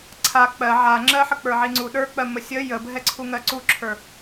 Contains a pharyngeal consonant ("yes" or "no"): yes